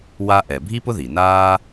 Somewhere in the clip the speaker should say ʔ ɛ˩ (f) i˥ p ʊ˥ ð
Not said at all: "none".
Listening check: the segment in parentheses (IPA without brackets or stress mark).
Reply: bʱ